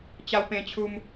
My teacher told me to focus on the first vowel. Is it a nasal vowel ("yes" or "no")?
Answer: no